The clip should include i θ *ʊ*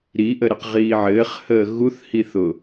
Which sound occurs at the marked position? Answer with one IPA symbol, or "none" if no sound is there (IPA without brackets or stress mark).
ʊ